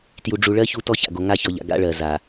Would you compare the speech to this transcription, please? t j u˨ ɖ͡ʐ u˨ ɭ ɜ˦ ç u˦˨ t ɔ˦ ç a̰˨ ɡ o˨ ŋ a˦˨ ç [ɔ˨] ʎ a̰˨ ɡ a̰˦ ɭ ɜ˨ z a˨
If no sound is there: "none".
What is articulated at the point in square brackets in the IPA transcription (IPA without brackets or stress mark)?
ɔ˨